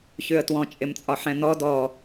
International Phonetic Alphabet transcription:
çʉə̯twɔ̃ t͡ʃʼɪmt͡sʼɒħɛ̃n̪ɔ dɔ

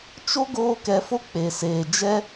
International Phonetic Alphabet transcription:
t͡ʃo˦ ɡoː˦kɛ˧fo˦ k͡pe˨seː˨ d͡ʒɛ˦

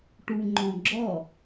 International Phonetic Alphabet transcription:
ʈuŋ͡ǃɔ̃ɡ͡ǁɔ

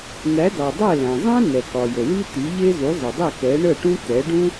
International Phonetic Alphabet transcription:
n̪æ˩˥dɑ˩dˤɛ˥˩ læ̃˩zˤæ̃˥ nɛ˩kɒ˩jə˩ wi˥t̪i˩˥ʎe˥ zu˩˥zˤə˩dˤe˥˩ kɛ˩˥ ɳə˥˩ʈũ˥ t̪ɛ˩˥ɖũ˥

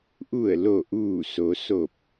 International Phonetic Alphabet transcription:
ʔu˧˩ə̯lo˧˩ ʔuː˧˩so˩˧ so˧˩p̚

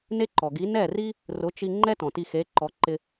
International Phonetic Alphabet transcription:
ne˥ǃɔ˩ɡi˨˥ nɛ˥˩ri˥ | rʊ˨˥ t͡ʃi˧ ŋ͡ǃɛ˥ tɔ̃˩ti˧xe˨˥ǃɔ˨˥ ǃɪ˧

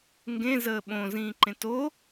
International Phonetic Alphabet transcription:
ŋɡẽzəː ɓõzĩːǃẽ to

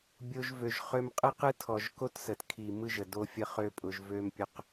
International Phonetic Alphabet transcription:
bʲo˧ʒvø˨ʒ χø˧mqʼɯ˦qɯ˦ tʰɔ˨ʒko˦tsə˨t kʰi˨ mɯ˦ʒə˨ do˦fʲə˦ χø˦pʼʊ˧ʒ vø˦mpʲʊ˦q

